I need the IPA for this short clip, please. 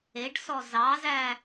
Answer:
e ɖ s ɔ z ɑ z æ

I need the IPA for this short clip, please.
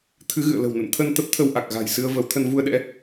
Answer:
t̪ʰ ɨ˨˦ ɣ ɨ̰˧˨ ə̯ l ə̤˨˩ w n ə̰˧˨ n t̪ʰ ə˧ n t̪ ə˦˥ p̚ t̪ʰ ə˧ w ʔ a˨˩ k̚ ɣ a̤˨˩ j s ɨ˧ ə̯ v ə˨˦ w t̪ʰ ə˧ n v u˧ ə̯ ɗ ɛ̰˧˥

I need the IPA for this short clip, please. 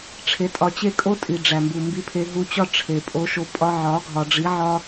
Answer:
ʈ͡ʂʰ e˧ tʼ ɒ˧ t͡ɕ e˦ kʼ o˦ tʼ i˨ ɖ͡ʐ æ˨ m b u˨ m b i˧ pʰ e˧ ɦ u˧ t͡ɕ ɒ˦ ʈ͡ʂʰ e˨ pʼ o˧ ʃ o˧ pʼ ɒ˧ ʕ ɒ˨˦ ɡʱ ɒ˨ ɖ͡ʐ i˨˦ ʕ ɒ˦

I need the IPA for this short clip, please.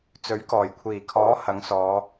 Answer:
t͡s ɵ˨˥ ɥ k ɔː˨˩ j kʷʰ iː˨˩ kʰ ɔː˨˥ h ɐ˨˧ ŋ s ɔː˨˧

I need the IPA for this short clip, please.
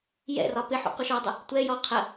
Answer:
j ɛ̰ r ɒ p ɪ ħ ṵ q u ʃ ɔ dˤ ə | tʷ ɛ j ɔ qʰ ə

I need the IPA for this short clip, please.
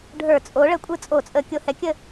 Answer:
ɖʱ ə˞˧˩˧ t͡sʼ o˨˥ ɭ ə˨˥ kʷʼ ɯ˥˩ t͡sʼ o˧˩˧ t͡sʼ ə˨˥ kʲ o˧˩˧ h ɛ˨˥ kʲ ə˥˩

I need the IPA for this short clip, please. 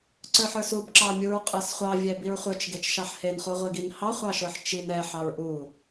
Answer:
ǀ ə˞ ħ ə˞ s u b ǁ ɑ mʲ u ɹ qʼ ə˞ s χʷ ɑ vʲ ɛ b i ɹ χʷ ə˞ t͡ʃ ɡ e t͡ʃ ʃ ɑ ħ h e n χ u ʁʷ i ɡ i n h ɑ χʷ ɑ ʃ ə˞ ħ t͡ʃ i n ɛ ħ ɑ ɹ ʔ u

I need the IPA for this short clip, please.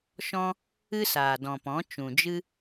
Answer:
ʃ ɔ̃˦ | ɨ˦ s aː˨ d ɔ̃˨ p ɔ̃˨˦ t͡ʃ ũ˨ d͡ʒ ɨ˦

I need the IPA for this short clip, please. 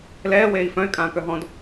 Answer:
l ɛː w eː i̯ f œ̃ y̯ kʼ ãː k œ ɦ ɔ̃ d

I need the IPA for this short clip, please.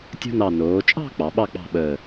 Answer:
tʲ o̤˥ n ɑ˧˩ n oː˩˧ t͡ʃʼ ɑ̤˥˧ k͡p ɑ˩˧ ɓ ɑ˥˧ k͡p ɑ̤˥˧ ɓ əː˧˩

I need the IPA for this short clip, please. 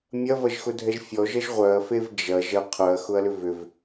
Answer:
mʲ ɐ v ɐ ʒ x ʊ dʱ ɛ ʒ fʲ ɔ ʒ ɐ ʒ ʁʷ œ ɐ̯ f e v d͡ʒ ɐ ʒ ɐ qʰ œ ɐ̯ x ʊ ɐ̯ l ʏ v ʏ v

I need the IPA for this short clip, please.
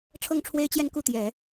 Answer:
ʈ͡ʂʰ ɤ˥˩ ŋ ʈ͡ʂʰ w e˥ ɪ̯ t͡ɕ j ɛ˥˧ n k u˥˩ t̪ j ɛ˨˩˦

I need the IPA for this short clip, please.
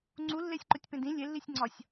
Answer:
ŋ͡ǀ u lː e sʲ ǃ o tʲ p ẽ d ĩ lʲ e lː i sʲ ŋ͡ǀ ɒ sʲ

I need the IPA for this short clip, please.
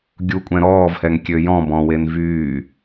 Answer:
ɡʲ u kʷʼ ɛ̃ ɾ ɔː v h ɛ ŋ kʲ ø j ɔ̃ b ɔ̃ w e n v yː

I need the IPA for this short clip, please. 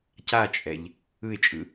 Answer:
c a t͡ʃʼ ɛ ʎ | ɯ ɪ̯ t͡ʃʼ ɯ

